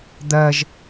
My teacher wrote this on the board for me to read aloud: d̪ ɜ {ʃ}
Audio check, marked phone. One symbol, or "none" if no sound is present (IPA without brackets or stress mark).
ʒ